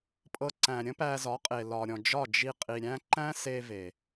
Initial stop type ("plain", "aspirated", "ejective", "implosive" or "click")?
ejective